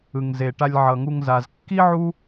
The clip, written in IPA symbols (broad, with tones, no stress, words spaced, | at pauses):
ɯ˩ŋze˩ ʈa˨lʲʕʌ˩ŋu˨ŋ za˩zkːi˥ʕu˦